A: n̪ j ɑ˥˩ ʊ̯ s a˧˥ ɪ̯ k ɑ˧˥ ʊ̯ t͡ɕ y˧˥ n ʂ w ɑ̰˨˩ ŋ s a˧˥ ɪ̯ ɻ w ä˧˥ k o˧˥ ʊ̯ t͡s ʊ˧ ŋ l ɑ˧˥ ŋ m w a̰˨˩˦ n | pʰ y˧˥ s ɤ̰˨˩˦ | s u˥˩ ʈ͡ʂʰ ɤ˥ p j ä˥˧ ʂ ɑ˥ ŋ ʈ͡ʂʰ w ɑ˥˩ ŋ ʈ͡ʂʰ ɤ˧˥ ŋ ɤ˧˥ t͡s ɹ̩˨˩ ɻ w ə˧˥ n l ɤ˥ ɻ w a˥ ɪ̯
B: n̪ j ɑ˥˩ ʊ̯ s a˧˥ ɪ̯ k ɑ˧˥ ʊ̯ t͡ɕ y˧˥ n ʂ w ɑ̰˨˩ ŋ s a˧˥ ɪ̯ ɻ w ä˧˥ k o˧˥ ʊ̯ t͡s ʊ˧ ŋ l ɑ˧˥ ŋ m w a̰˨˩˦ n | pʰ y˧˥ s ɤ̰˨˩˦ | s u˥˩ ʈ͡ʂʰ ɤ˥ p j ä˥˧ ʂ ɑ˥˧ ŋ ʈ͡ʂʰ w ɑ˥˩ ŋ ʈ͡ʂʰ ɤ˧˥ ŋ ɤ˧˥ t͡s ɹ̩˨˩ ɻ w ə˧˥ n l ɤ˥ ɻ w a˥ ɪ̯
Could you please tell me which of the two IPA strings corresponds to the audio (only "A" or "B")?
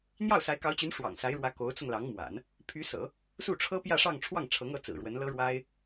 B